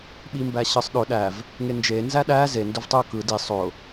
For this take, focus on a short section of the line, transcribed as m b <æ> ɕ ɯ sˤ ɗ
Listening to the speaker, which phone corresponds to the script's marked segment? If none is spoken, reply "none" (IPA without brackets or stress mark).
æ